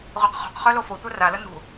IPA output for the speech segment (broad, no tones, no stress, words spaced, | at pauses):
ʁʷeqχo̤qχœ lofotʷœ ralə nṳ